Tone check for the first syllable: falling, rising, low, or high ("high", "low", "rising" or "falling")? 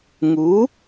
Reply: rising